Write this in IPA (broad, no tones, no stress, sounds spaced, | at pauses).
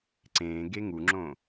ǀ ẽː ɡ e ŋ u ŋ͡ǁ õ